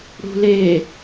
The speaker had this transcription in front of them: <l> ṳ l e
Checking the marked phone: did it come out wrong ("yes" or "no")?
yes